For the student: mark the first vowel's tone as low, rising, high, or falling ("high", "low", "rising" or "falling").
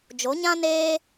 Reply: rising